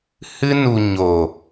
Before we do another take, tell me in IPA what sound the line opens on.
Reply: h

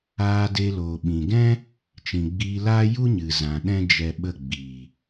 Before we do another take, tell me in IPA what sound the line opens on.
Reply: aː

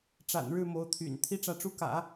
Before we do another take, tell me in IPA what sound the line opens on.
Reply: ʈ͡ʂ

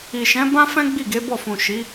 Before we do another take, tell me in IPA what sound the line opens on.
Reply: i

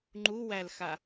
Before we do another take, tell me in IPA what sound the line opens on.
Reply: ŋ͡ǃ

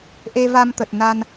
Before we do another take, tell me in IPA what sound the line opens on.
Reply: ʔ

